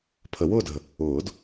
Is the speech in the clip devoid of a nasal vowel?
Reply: yes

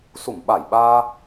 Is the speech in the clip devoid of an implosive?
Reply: no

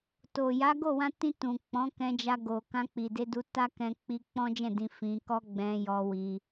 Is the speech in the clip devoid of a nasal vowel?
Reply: no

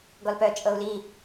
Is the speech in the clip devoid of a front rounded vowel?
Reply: no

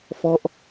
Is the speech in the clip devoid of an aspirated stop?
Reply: yes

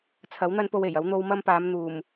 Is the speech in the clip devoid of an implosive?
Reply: yes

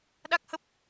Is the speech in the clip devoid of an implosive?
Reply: no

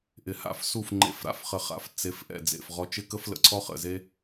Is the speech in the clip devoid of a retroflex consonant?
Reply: yes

